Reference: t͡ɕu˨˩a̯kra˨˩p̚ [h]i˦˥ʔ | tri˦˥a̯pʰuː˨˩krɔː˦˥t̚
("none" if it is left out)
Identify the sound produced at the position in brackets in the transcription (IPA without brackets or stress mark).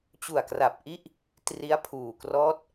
ʔ